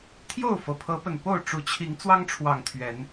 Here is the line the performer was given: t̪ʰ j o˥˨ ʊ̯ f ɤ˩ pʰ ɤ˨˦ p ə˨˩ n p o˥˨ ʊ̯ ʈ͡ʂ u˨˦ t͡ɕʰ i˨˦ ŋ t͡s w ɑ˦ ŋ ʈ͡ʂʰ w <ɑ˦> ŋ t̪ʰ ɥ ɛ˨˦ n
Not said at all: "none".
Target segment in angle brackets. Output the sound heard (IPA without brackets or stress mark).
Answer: ɑ˨˩